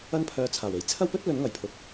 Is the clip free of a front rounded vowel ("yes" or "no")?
no